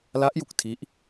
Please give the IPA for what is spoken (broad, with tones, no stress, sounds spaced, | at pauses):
l a˦˥ ʔ j u˨˩ k̚ tʰ i˦˥ ʔ